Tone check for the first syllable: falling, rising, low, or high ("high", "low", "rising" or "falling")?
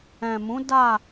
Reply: low